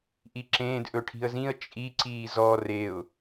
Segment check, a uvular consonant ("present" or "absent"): absent